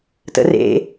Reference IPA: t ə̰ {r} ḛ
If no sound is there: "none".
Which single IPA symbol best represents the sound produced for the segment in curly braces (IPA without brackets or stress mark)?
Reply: r